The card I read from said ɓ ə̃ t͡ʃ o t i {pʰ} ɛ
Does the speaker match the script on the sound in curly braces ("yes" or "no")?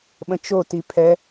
yes